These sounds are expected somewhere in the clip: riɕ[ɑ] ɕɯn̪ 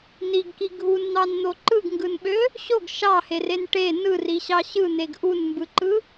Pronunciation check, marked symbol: correct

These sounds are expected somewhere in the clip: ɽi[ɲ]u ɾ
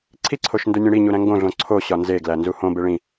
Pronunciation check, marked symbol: correct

